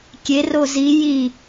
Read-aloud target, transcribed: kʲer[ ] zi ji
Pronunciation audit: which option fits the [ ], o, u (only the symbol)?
o